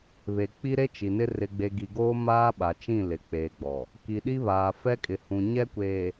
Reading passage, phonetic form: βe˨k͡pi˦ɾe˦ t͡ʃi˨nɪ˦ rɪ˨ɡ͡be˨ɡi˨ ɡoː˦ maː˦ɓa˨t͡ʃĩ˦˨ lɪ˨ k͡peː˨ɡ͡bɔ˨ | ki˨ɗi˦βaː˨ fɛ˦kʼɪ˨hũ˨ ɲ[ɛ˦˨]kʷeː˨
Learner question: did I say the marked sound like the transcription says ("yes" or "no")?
no